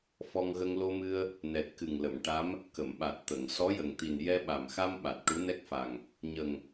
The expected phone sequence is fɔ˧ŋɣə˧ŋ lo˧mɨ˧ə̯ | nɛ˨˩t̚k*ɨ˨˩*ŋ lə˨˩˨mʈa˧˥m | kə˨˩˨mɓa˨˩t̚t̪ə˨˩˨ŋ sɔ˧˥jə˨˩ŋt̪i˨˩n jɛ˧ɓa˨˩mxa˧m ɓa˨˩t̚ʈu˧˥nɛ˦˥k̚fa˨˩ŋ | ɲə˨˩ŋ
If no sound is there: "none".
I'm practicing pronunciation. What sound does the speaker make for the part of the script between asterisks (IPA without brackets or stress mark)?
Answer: ɨ˨˩